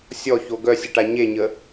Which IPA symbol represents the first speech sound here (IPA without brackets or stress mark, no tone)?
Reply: sʲ